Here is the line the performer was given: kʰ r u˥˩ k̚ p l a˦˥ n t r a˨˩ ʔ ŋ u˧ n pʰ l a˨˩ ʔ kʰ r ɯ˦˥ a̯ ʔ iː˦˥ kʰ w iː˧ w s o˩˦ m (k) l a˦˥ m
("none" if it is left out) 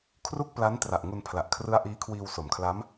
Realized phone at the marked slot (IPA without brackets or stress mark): kʰ